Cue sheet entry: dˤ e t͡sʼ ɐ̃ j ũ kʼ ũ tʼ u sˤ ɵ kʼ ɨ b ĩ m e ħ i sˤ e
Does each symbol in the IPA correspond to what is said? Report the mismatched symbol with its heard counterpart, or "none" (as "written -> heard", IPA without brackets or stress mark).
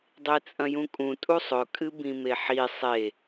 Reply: none